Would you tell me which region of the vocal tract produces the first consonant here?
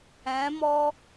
lips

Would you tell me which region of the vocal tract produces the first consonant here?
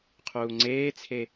uvula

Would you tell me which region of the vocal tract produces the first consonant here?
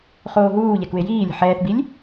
uvula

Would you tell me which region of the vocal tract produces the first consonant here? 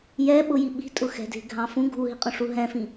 palate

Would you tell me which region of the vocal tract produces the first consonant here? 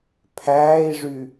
lips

